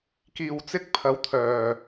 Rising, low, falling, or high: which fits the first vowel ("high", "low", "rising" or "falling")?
low